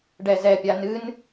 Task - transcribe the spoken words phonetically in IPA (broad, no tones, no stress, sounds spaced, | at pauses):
ɖ ɛ z ɛ pʲ a n ɨ n